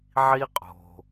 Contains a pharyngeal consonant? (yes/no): yes